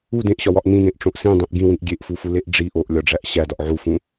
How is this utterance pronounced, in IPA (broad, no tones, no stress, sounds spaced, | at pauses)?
u d ẽ ʔ ɕ ɒ w ɒ ʔ n ĩ n ẽ ʔ ʈ͡ʂ õ ʔ s ĩ dˤ ĩ ʔ ɡ ĩ w ĩ ʔ ɡʲ e ʔ f u f u l e ʔ ɖ͡ʐ i ʔ o ʔ lʲ ɒ ɖ͡ʐ æ ʔ ɕ æ d ɒ ʔ ʕ u f ũ